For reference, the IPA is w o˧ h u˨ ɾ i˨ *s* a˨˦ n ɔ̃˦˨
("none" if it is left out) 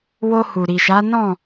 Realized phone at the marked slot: ʃ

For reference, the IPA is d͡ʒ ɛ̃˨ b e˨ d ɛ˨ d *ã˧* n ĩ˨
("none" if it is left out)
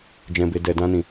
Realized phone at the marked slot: ã˧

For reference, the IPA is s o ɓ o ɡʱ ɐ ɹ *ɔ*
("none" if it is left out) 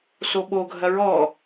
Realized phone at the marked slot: ɔ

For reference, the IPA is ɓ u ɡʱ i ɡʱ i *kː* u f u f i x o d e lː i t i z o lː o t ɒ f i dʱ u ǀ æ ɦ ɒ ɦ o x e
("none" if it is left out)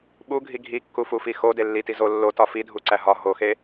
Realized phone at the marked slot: kː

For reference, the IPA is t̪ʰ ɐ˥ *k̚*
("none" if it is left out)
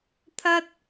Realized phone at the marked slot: t̚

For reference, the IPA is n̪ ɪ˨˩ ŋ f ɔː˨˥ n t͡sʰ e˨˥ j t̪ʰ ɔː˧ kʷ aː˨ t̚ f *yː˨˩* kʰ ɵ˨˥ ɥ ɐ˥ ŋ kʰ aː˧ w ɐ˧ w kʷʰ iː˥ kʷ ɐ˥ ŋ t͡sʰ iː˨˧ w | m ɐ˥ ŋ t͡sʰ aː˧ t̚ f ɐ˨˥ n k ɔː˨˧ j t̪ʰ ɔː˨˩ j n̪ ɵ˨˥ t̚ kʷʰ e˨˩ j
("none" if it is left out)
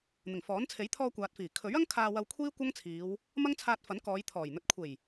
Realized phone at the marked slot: iː˨˩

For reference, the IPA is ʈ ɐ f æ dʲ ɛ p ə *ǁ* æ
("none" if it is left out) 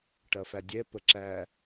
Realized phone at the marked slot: ǁ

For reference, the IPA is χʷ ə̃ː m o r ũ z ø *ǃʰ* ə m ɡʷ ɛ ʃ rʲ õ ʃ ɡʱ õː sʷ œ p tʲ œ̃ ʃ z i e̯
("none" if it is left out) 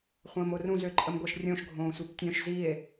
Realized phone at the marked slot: ǃʼ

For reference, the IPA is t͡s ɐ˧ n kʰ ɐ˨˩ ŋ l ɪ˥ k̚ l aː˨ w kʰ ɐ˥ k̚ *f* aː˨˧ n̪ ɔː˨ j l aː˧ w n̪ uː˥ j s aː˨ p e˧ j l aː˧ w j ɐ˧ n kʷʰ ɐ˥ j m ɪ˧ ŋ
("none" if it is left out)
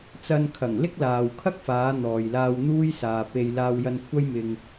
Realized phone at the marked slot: f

